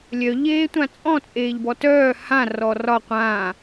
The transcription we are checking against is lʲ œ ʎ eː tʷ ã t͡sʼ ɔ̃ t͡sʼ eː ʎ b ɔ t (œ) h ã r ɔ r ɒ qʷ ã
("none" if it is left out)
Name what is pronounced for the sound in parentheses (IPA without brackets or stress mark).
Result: œː